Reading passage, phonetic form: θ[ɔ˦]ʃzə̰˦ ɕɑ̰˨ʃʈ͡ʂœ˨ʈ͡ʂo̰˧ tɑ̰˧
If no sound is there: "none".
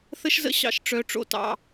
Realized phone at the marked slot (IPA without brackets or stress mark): ə˦